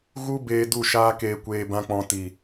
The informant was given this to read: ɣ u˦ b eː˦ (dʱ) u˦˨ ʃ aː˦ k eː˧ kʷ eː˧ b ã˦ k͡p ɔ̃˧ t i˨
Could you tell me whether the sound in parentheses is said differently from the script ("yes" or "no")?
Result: yes